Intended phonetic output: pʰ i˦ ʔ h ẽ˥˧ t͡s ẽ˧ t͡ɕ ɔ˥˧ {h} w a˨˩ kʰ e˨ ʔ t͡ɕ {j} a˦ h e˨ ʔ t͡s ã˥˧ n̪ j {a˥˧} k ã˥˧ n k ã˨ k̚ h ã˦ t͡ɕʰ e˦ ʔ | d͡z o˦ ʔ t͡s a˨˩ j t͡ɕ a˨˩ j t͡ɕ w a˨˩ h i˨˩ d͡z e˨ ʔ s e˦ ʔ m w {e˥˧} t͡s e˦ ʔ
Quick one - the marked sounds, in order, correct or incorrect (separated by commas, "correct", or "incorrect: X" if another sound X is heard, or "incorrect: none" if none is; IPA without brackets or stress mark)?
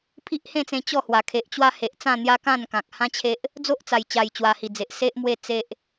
correct, incorrect: w, incorrect: a˦, correct